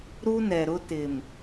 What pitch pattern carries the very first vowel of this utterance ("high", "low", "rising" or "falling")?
high